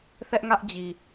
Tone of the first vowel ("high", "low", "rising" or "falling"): high